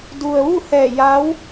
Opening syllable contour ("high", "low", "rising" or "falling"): low